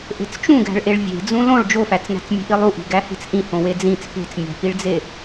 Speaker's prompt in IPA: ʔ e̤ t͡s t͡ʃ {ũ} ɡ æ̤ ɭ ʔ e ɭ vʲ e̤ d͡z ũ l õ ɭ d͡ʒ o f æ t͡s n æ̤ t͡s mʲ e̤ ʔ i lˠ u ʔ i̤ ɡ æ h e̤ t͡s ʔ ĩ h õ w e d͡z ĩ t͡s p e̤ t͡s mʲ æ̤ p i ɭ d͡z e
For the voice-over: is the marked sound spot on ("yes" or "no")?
yes